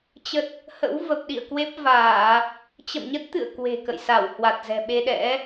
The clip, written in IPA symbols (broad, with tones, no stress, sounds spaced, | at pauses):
t͡ɕ ə˦˥ t̚ | h ə̰˧˥ w v ə˨˩ p̚ ɗ ḭ˧˨ ə̯ k w e˦˥ p̚ v aː˧˩˨ | t͡ɕ ə̰˧˨ m ɲ ə˦˥ t̚ t̪ ɨ̰˧˨ ə̯ k w e̤˨˩ k ə̰˧˨ j s a˧˩ w h w a˨˩ t̚ z ɛ̤˨˩ ɓ e˧ ɗ ɛ̰˧˥